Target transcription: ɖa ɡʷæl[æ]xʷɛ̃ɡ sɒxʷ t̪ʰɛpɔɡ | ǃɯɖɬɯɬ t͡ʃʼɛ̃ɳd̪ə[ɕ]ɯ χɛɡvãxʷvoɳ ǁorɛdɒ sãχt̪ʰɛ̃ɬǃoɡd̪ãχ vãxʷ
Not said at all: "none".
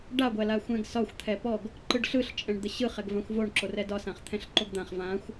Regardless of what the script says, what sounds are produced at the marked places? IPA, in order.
a, ɕ

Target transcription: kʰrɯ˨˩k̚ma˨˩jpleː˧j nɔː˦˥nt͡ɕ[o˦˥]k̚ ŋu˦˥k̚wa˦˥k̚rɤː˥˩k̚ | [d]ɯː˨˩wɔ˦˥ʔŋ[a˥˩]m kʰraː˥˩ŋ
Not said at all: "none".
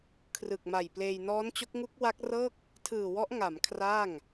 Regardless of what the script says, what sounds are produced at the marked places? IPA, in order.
o˦˥, tʰ, a˩˦

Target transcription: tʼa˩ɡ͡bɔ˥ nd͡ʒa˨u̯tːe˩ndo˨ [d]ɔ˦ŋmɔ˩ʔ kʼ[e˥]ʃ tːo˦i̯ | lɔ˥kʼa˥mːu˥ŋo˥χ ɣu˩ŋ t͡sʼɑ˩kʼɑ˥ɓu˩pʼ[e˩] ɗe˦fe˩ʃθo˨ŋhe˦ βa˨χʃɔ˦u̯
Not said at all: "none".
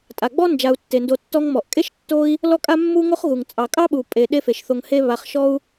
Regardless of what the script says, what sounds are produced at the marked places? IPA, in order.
tː, e˥, e˩

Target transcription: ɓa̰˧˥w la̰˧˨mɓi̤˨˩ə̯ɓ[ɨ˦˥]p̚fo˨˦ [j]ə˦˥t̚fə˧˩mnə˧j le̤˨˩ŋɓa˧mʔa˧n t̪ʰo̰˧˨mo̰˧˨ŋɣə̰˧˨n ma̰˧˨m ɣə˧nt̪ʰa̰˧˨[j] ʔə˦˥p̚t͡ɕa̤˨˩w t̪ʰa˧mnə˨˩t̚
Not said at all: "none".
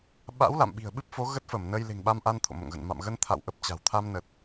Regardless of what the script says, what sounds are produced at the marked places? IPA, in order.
ɨ˦˥, ɣ, w

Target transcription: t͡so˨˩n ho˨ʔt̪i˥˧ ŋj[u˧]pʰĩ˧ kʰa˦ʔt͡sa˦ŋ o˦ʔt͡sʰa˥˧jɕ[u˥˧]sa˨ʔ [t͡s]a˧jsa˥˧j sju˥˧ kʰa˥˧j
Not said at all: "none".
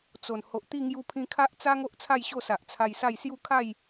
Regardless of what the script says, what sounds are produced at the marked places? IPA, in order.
u˧, o˥˧, t͡sʰ

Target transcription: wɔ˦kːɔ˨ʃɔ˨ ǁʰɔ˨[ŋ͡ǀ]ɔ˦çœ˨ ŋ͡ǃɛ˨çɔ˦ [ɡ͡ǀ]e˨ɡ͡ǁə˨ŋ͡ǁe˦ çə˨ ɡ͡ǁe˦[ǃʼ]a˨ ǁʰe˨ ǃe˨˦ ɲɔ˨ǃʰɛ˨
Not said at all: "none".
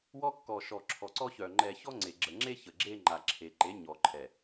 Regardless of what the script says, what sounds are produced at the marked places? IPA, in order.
ǀ, ŋ͡ǀ, ŋ͡ǃ

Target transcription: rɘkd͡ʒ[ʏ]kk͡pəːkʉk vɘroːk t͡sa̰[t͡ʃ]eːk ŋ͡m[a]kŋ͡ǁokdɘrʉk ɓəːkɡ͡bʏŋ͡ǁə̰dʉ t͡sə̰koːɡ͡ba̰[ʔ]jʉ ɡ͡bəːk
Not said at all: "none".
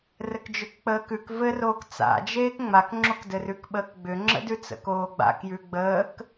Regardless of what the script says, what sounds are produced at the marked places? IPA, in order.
ʏ, d͡ʒ, a, k

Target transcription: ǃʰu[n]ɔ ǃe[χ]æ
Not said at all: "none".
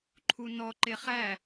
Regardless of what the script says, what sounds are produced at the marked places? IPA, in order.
n, χ

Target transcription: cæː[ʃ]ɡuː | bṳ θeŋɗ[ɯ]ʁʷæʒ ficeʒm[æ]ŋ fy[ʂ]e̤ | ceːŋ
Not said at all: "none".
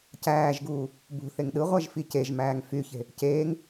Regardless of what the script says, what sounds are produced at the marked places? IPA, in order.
ʒ, ɯ, æː, ç

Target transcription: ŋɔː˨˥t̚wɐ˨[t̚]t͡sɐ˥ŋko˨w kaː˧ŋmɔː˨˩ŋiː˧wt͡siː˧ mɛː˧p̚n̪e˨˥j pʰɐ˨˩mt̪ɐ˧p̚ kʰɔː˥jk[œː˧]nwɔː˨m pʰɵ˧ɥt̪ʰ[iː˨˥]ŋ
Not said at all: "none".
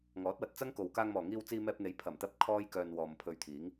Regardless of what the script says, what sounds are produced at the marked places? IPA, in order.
t̚, œː˧, iː˨˥

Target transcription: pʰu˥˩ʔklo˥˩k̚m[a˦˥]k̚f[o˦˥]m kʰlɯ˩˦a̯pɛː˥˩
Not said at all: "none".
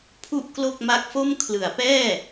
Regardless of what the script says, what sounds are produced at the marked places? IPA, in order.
a˦˥, o˥˩

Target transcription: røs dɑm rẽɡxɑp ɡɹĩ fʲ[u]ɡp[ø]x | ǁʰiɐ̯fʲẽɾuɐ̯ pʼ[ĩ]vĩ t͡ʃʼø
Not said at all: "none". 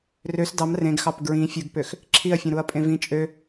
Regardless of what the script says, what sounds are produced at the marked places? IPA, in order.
ɯ, ø, ẽ

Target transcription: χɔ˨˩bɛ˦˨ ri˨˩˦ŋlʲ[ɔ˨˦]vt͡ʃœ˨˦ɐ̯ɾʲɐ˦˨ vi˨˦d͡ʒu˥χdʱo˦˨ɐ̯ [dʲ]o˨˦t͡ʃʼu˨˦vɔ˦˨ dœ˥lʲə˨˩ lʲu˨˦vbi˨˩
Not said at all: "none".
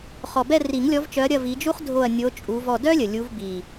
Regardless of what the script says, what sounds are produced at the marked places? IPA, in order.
ɔ˨˦, nʲ

